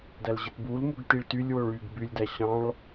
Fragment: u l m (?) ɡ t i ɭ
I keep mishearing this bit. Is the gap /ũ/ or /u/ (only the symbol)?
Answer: u